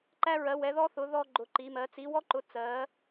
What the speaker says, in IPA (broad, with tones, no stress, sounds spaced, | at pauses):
ǃ æ˥ ɹ ɜ˧˥ w ɛ˧˥ ð ɔ˥ θ ʊ˧˥ ð ɔ˥ ɡ͡ǃ ʊ˧˥ ǃ i˧˥ m ɜ˧˥ t͡s i˧˥ w ɔ˥ ǃ ʊ˧˥ t͡s ɜ˧˥